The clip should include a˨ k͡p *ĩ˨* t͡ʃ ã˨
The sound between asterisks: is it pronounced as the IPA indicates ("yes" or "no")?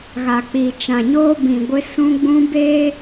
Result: no